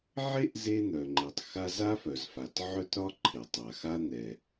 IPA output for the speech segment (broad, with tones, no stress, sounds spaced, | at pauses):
ʕ e˥ ʔ z e˥ n̪ œ˩ ŋ͡ǃ e˩ tˤ x a˥ z a˥ f œ˩ z f a˩ t ʕ œ˥ t ɾ ɒ˥ ǃʰ e˩ tˤ a˩ x a˥ n̪ ɛ˩